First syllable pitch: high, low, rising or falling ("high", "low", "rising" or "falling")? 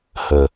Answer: low